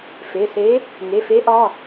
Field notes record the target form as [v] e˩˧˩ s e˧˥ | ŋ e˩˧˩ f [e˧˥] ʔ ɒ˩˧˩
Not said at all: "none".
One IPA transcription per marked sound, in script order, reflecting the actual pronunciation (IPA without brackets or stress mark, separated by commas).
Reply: f, e˧˥